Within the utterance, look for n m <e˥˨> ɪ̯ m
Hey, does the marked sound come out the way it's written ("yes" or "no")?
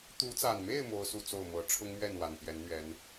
yes